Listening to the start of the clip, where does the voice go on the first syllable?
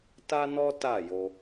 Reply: high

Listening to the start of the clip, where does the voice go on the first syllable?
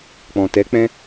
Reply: low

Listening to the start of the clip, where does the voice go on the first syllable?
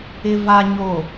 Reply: low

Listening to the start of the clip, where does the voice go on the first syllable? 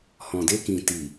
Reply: low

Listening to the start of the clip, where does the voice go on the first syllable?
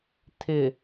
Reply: low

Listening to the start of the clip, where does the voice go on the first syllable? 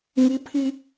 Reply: high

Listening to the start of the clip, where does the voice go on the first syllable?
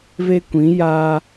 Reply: high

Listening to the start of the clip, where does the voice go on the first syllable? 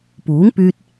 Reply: rising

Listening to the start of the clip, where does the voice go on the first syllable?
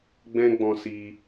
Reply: high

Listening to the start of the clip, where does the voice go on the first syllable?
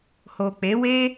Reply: low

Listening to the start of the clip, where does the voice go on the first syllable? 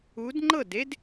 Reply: rising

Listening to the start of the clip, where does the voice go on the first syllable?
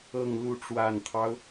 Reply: low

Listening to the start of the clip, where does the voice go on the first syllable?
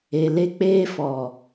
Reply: low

